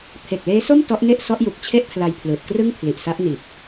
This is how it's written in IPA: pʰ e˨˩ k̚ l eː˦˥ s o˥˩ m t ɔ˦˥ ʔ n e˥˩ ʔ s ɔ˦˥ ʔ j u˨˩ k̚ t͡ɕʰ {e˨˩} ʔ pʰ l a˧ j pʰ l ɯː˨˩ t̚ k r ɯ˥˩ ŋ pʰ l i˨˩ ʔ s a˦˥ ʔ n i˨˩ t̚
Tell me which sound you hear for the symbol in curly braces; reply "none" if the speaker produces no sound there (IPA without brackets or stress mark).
e˥˩